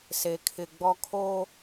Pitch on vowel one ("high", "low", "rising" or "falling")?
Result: low